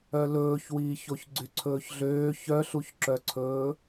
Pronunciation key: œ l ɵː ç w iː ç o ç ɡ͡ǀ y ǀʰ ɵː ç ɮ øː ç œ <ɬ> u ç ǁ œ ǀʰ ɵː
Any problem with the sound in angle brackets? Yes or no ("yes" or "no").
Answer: no